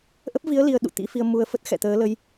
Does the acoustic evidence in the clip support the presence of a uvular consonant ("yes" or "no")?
no